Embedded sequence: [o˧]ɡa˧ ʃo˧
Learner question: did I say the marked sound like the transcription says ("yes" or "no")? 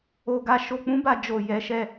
yes